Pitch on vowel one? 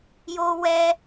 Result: high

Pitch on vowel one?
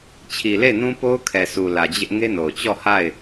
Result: low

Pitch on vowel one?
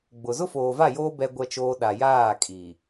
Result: low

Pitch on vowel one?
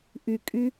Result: low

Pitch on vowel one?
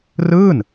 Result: falling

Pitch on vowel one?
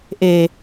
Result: low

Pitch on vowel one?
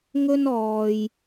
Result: high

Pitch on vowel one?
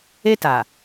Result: high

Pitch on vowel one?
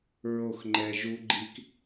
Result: falling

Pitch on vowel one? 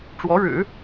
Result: rising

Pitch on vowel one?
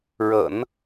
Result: low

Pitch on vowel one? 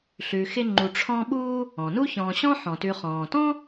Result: low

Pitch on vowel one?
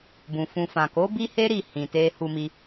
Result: low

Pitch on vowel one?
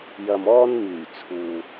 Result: low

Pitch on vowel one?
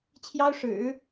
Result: high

